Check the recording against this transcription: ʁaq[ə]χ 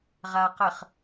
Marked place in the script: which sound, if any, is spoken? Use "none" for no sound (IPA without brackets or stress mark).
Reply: ə